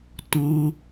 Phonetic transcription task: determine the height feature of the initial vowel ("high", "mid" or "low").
mid